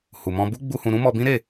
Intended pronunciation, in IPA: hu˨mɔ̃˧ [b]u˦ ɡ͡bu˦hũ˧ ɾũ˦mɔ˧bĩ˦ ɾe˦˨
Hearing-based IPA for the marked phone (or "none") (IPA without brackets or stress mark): b